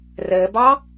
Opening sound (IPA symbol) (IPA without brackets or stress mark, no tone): r